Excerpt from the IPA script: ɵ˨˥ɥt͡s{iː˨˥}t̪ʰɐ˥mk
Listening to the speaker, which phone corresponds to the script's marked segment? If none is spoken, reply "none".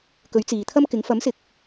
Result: iː˨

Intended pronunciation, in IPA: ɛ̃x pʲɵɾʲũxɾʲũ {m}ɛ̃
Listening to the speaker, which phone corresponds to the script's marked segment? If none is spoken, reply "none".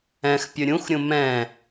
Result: m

